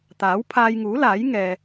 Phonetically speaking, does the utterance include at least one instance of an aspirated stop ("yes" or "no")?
yes